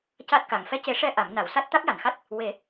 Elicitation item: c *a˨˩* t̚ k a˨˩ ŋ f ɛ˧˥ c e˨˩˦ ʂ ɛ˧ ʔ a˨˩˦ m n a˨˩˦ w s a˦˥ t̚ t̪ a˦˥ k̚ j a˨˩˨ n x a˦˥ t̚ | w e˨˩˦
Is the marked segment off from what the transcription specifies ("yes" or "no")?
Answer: yes